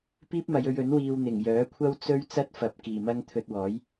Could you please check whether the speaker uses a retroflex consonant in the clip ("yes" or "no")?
no